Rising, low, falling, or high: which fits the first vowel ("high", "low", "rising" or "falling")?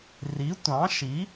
rising